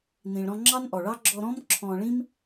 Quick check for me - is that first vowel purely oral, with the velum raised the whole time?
no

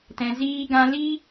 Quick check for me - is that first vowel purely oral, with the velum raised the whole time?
no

